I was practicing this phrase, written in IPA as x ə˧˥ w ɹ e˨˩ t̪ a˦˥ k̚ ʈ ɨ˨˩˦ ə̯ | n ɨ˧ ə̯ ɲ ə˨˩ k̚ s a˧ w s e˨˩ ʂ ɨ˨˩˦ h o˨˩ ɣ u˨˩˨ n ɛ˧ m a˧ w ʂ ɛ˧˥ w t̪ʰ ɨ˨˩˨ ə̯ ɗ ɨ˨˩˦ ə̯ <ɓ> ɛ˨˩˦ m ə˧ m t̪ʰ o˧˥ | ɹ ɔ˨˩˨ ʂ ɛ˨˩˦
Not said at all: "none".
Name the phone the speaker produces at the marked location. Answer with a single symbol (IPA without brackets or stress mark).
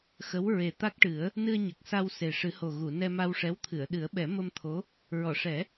ɓ